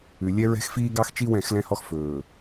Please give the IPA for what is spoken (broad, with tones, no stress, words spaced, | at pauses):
ʉ˨lʲɛ˦ ɹɛ̤˦xfiː˦ɡɑ˦xt͡ʃi˦ wɛ̃˦˨xlɛ̃˦hɔ˦x fɵː˨